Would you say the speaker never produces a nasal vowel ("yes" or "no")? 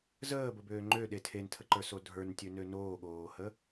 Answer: yes